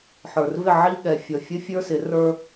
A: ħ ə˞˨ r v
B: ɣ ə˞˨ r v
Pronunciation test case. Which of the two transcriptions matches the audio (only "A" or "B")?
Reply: A